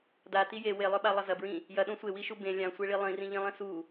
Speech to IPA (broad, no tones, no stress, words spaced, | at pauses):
dati je welˠɵɓalˠɐ zɐbɹĩ | jɐɗõ sʷewiʃu bẽ lʲãsʷeɭi lˠĩrĩʎĩlˠĩ su